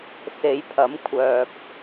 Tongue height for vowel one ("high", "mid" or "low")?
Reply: mid